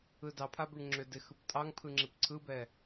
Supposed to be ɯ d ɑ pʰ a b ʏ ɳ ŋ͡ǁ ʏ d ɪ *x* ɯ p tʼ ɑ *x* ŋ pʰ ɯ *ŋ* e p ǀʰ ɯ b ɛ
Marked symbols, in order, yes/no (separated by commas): yes, no, no